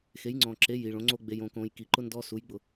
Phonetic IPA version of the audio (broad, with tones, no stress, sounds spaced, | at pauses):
x e˨˦ j ŋ͡ǀ ɔ̃˨ ǁ e˨˦ j i˨ ɭ õ˨˦ ŋ͡ǀ o˦ ɡ͡b e˨ j õ˨ k õ˨ j k i˨ ǃ ʊ˦ n d ɔ˦ s u˨˦ j ɡ͡b ʊ˨